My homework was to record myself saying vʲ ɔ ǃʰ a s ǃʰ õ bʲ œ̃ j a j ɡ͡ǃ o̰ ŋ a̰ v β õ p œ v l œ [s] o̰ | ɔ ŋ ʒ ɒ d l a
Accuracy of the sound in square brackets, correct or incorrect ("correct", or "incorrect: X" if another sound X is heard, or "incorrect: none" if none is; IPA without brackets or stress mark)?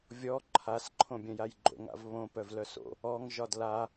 correct